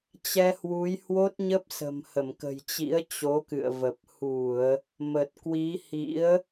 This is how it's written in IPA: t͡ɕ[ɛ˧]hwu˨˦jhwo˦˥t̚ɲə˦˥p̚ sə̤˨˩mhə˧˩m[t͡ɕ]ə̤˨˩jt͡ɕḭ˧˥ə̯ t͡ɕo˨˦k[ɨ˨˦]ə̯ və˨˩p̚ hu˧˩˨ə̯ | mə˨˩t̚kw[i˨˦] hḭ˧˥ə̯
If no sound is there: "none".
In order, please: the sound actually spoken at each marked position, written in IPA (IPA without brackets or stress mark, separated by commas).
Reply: ɛ˧, k, ɨ̰˧˨, i˨˦